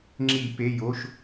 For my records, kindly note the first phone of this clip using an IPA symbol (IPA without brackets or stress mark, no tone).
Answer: ŋ͡ǁ